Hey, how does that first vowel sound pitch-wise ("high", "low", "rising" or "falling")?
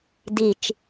low